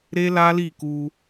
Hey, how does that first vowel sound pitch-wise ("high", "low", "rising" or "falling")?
high